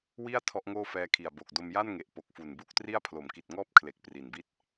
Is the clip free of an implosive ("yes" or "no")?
yes